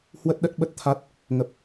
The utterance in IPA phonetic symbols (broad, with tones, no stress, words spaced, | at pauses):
hwə˦˥t̚ɗə˦˥t̚ɓə˦˥t̚ t̪ʰa˦˥t̚ | ŋə˨˩p̚